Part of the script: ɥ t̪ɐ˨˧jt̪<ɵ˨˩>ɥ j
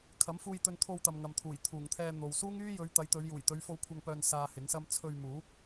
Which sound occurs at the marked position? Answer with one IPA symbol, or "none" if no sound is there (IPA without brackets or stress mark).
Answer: ɵ˨˧